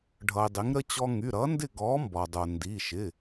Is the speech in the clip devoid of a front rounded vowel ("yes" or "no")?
no